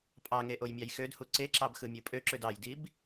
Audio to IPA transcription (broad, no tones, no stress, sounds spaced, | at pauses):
pʼ ɑ ŋ e ʔ o j mʲ ɑ j x ø d h u ǀ e ǁ ɑ b x ɯ mʲ ɯ pʼ ø ǁ ø d ɑ j d i b